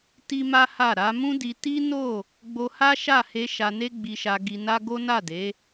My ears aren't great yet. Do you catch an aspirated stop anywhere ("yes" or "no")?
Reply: no